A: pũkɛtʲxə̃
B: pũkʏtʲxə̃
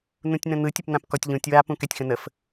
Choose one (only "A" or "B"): A